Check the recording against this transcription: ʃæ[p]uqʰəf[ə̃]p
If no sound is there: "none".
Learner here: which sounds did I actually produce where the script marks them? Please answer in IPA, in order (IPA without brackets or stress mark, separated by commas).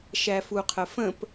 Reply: f, ə̃